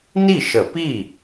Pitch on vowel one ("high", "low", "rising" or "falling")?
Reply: falling